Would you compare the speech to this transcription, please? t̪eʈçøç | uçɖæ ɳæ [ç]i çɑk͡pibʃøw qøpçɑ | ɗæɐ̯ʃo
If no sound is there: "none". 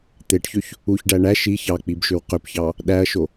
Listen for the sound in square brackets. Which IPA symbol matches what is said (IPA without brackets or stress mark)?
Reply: ʃ